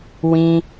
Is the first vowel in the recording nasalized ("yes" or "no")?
yes